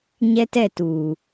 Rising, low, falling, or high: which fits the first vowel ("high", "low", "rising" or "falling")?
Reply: high